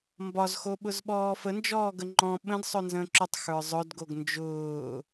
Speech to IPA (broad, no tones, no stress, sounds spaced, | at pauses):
m b ɒ z x o ɓ ʊ z ɓ ɔː f ə n d͡ʒ ɔː ɡ ə ŋ͡ǃ ɔ̃ ɓ ə̃ d sˤ œ n z ə̃ː ǁ ʊ tˤ x ə˞ zˤ œ d ɡ o ɡ n d͡ʒ ʊː